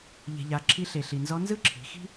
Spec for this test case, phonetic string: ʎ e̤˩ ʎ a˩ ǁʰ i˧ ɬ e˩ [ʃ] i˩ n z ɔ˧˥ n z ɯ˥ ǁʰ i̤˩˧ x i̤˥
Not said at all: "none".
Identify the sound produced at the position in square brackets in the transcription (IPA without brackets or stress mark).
ɬ